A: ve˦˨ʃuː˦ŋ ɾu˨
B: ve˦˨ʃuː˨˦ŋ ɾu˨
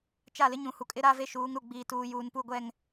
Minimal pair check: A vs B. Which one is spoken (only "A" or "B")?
B